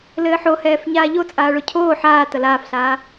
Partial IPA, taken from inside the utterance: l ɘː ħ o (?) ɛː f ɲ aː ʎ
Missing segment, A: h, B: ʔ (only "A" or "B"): A